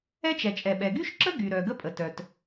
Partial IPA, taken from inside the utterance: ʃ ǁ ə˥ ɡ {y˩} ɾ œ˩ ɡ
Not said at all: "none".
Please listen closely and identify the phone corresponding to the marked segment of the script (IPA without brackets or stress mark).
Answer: y˩